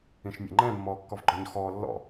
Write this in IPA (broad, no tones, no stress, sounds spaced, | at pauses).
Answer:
ĩ ʃ mʲ ɛ̰ ŋ͡ǃ ɛ̃ mː ɔː kː ɔ v ɡ͡ǃ ɔ ɲ x ɔː lː ɔ̰